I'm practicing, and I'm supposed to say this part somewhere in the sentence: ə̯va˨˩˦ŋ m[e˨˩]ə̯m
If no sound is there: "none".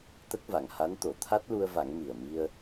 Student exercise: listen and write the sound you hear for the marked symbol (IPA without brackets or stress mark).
i˨˩